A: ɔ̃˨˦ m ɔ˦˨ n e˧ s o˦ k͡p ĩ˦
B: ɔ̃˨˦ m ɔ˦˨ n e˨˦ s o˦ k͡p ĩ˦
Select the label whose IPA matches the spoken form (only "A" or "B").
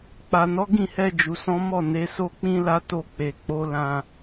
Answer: B